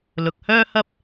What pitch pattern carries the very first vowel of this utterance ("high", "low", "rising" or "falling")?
low